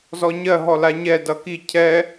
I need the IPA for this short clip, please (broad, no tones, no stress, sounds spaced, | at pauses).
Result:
z ɔ ɲ ɜ ɦ ɔ l a ɲ ɛ d ʌ k i cʰ ɛ